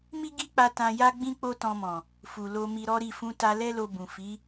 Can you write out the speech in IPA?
m i˦ ɡ i˦ k͡p a˧ t ã˧ j a˦ ɡ͡b ĩ˦ k͡p o˦ t ɔ̃˧ m ɔ̃˨ | f u˨ l o˧ m i˧ ɾ ɔ˦ ɾ i˦˨ f ũ˧ t a˧ l ɛ˦ l o˧ b ũ˨ f i˨˦

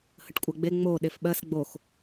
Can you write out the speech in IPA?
h ə ʈ kʷʼ ɜ ɡ͡b e ŋ͡m o ɗ e f ɓ ɜ s ɡ͡b o x

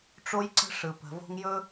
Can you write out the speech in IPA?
ʈ͡ʂ o˦ j ǀ ə̤˦ ʂ ɯ˨ p ə̤˨ v o̤˦ ŋ j ɵ˦

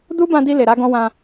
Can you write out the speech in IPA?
d u˦ b ã˧ d i˧ l e˨ ɾ a˧ ɡ ɔ̃˧ w ã˧

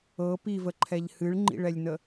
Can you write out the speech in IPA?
ɤ p i v ə ǃʰ ɛ ʎ h ɨ ɭ ŋ͡ǃ ḭ ɭ ɛ lʲ n ə

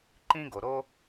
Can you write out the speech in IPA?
ǃ ĩ˦ ɡ o˨ ɾ o˦

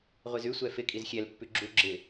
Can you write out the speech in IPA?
ʁʷ i z ʉ sʷ ɛ f ɪ kʼ i z xʲ ɛ l pː ʉ ɡ͡ǁ u ɡ͡ǁ ɪ

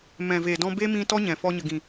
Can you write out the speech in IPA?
m ɛ̃˨ v e˨ d ɔ̃˧ b e˦ m ĩ˧ t ɔ˦ ɲ ɛ̃˨ f ɔ˧ ɲ ə˨ ɡ ĩ˨

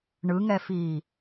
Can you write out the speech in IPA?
ɳ ɯ ŋ ɛ f iː

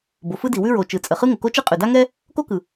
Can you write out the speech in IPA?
b o˩ f ɯ˥ d i˩ w ʉ˥ ɹ o˩ t͡ʃ ɯ˩ t͡sʼ ə˩ χ ɯ˥ ŋ ə˩ k o˥ t͡ʃ ɯ˥ qʼ ʉ˩ d a˥ ŋ ɛ˥ | k o˥ k ɯ˩

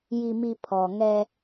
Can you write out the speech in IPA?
j i˨ m i˨ pʰ ɔ˨ ŋ ɛ˦

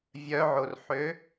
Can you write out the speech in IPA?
vʲ œ ʕ o r ħ ø

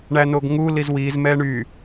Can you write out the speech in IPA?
ɳ æ n o ɡ ŋ u l i z w i z m ɛ ɳ y

